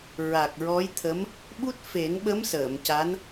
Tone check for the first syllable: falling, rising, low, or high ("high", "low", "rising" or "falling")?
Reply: low